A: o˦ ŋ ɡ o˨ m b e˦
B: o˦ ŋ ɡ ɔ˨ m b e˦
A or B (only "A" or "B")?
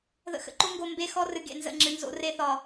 A